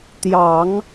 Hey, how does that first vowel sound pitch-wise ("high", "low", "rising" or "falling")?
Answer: low